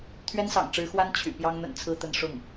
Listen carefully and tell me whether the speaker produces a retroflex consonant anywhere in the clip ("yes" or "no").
yes